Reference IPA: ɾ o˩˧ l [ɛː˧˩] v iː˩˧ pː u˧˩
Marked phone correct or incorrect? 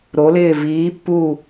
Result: incorrect